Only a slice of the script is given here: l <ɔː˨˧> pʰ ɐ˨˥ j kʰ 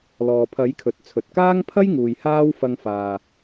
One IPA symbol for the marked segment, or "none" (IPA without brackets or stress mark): ɔː˨